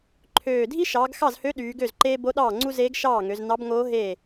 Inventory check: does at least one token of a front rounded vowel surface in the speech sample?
yes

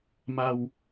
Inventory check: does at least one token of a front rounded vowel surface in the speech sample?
no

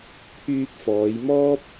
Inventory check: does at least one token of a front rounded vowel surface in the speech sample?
yes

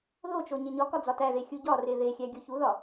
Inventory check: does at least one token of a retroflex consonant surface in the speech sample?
no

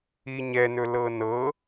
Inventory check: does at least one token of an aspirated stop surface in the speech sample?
no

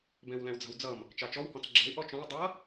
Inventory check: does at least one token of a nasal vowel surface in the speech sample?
yes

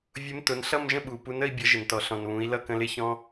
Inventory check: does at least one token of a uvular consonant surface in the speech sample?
no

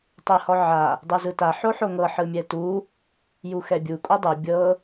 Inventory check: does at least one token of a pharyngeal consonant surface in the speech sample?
yes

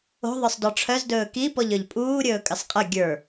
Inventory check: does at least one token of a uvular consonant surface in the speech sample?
yes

